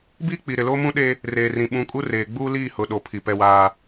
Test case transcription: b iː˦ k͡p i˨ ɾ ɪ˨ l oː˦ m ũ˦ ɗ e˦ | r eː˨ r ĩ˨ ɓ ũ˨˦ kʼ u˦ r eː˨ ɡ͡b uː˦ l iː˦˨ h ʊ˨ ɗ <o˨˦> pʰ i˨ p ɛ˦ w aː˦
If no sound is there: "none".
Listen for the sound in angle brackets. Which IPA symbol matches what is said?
o˨˦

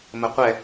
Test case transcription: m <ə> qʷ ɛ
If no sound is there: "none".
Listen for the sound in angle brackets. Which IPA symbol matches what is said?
ə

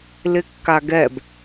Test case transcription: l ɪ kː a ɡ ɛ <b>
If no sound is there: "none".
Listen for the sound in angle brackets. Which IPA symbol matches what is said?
b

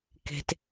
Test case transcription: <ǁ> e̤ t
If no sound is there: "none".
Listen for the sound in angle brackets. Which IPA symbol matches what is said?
k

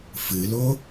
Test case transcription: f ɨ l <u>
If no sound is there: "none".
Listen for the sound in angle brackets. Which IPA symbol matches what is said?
o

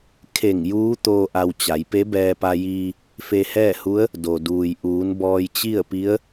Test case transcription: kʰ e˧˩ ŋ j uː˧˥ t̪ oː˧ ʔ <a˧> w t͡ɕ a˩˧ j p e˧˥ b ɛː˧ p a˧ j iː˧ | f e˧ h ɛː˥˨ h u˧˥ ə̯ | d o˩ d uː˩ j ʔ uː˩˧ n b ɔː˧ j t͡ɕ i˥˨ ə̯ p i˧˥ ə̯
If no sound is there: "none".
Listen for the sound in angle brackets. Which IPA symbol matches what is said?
a˧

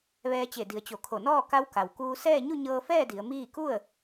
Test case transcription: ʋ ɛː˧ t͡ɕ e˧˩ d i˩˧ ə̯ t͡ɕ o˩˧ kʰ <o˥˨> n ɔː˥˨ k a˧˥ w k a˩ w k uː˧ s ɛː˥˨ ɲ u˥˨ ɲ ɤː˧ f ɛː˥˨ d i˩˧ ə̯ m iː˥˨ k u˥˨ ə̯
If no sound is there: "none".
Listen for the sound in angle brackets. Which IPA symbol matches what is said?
o˧˩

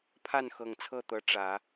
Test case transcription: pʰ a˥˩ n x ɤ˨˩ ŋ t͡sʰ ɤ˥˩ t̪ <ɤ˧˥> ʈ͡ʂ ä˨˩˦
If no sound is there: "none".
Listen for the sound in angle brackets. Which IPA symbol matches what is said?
ɤ˧˥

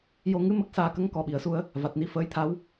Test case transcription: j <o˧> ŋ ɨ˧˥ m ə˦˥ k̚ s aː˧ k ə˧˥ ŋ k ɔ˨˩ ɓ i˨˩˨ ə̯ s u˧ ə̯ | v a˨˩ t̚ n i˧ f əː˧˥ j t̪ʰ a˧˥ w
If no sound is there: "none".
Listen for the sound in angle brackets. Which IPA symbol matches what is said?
o˧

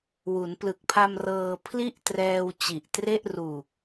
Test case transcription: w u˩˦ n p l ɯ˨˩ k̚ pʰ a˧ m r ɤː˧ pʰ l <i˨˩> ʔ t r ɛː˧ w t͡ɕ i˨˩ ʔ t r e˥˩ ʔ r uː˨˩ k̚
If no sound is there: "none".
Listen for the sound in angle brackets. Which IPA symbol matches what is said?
i˥˩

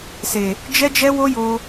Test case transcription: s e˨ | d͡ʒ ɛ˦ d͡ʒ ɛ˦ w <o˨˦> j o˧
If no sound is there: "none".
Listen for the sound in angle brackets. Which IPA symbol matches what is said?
o˦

